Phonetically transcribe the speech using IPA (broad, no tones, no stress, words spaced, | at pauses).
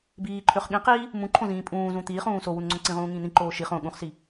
biːǃʰøχ ɠĩqiː | mũǃʰõzĩː pʼũːzũ t̪iːχũː sowunŋ͡ǀõ ǀĩʁũːŋĩː n̪ĩǃoː ʃi χõ ɠũχsi